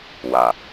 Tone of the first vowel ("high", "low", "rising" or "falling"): low